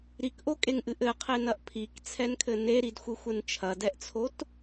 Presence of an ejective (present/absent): present